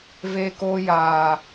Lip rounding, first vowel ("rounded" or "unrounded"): unrounded